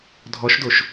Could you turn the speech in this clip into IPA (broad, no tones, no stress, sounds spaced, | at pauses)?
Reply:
dʱ ɔ ʃ d o ʃ